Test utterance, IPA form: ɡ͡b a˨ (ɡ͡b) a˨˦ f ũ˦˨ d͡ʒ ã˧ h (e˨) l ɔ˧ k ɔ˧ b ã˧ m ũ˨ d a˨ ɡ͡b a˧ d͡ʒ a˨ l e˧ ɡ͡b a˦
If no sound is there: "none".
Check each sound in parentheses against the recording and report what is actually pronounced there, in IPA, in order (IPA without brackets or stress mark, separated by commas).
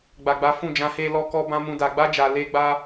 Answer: ɡ͡b, e˦